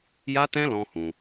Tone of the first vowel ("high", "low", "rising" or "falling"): high